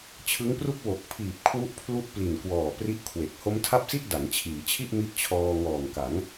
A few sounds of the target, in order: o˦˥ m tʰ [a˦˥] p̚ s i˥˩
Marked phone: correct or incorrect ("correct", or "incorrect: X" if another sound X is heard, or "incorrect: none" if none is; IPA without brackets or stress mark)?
incorrect: a˥˩